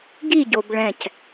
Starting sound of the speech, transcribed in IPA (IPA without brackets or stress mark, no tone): ɡ